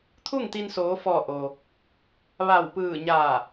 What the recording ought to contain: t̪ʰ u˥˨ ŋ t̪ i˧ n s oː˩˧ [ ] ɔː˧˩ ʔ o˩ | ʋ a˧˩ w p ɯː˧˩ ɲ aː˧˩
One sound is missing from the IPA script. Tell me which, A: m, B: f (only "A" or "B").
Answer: B